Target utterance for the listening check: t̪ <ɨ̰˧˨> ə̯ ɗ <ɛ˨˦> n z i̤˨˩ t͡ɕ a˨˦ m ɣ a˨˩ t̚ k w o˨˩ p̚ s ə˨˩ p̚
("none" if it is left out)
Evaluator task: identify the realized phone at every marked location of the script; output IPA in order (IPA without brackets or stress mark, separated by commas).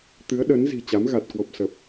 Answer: ɨ˨˦, ə˨˦